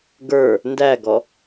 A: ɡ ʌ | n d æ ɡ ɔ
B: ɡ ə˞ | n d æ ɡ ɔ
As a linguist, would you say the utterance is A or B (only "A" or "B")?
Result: B